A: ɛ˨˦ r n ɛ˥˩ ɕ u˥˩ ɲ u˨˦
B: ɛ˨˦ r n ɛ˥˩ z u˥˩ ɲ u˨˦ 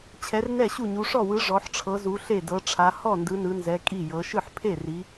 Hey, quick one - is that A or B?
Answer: A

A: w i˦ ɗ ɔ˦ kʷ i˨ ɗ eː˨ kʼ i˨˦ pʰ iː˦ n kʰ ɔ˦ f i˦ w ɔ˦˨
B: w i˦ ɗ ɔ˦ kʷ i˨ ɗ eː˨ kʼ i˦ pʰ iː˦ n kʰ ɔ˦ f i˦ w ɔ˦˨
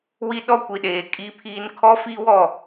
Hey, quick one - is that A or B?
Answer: B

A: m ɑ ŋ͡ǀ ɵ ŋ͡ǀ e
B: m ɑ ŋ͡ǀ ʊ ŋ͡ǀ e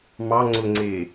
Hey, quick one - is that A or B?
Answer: B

